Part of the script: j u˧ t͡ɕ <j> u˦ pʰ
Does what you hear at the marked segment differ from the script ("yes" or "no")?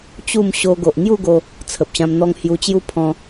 no